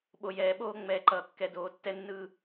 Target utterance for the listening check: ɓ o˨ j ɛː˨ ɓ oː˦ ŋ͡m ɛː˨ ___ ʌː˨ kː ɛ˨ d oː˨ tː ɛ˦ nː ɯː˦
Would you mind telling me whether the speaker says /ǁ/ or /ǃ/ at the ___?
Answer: ǃ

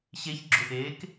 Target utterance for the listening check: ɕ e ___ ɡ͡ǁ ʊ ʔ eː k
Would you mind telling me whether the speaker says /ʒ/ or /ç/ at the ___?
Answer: ç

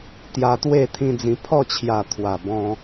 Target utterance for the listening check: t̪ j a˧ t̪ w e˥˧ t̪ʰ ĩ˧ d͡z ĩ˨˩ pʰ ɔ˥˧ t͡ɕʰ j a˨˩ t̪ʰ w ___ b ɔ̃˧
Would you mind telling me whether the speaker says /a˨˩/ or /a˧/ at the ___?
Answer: a˨˩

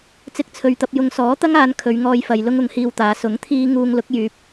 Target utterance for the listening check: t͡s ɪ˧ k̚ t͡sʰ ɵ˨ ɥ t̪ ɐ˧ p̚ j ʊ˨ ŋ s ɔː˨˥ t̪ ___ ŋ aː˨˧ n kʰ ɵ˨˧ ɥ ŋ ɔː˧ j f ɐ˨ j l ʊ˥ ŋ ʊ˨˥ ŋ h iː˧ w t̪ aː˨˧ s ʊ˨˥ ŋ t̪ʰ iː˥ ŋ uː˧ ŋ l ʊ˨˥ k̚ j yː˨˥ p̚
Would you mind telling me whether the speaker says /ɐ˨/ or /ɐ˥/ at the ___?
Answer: ɐ˥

